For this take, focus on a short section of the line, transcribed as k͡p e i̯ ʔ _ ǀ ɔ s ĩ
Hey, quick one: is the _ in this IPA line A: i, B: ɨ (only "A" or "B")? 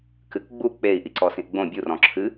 A